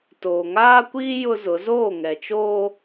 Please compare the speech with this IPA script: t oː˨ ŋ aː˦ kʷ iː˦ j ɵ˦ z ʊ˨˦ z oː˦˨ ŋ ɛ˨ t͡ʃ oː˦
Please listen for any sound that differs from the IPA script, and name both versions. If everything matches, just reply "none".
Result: ɵ˦ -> ʊ˦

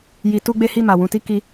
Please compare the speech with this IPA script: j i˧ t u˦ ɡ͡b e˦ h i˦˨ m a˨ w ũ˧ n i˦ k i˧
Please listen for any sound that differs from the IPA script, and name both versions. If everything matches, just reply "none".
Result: n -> t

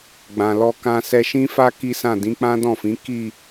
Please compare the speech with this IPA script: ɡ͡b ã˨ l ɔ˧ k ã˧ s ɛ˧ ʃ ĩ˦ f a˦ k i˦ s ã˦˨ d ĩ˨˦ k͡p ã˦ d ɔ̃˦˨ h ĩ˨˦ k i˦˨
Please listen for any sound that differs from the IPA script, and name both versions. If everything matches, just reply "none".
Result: h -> f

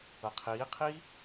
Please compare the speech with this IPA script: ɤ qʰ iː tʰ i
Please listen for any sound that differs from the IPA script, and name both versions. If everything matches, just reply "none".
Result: tʰ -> qʰ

